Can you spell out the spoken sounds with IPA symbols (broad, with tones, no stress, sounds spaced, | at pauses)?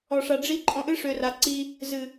ɔ˨ ʂ a˨ ɖ͡ʐ i˦ ǃʼ ɔ̃˧ ʔ ɨ˦ ʂ ø˨ r a˨ ǀ i˧ | z ɨ˨